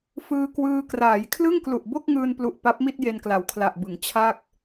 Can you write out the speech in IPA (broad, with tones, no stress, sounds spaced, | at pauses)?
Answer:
f ɯː˧ k w ɯː˧ k r aː˩˦ j kʰ l ɯ˥˩ ŋ k l u˨˩ ʔ b o˥˩ k̚ ŋ ɯː˧ n p l u˨˩ ʔ p a˦˥ p̚ m i˥˩ t̚ j e˧ n k l a˩˦ w kʰ l a˨˩ ʔ b ɯ˩˦ ŋ t͡ɕʰ a˥˩ k̚